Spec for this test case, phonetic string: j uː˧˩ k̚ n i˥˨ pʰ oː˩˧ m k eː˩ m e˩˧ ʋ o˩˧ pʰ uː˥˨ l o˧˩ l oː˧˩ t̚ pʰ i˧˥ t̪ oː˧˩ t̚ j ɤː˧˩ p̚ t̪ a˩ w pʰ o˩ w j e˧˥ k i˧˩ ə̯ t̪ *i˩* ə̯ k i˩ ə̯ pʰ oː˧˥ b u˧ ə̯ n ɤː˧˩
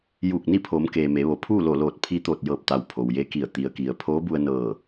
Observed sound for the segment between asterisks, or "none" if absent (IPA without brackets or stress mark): i˩